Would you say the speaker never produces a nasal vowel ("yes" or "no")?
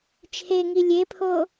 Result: yes